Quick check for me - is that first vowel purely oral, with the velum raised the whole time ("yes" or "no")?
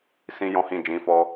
no